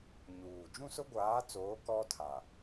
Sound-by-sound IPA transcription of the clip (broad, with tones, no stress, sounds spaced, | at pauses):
ɲ uː˨ d͡ʒ ũ˦ s ʊ˦ ɡʷ aː˨˦ t͡s oː˨˦ k ɔ˦ tʰ a˨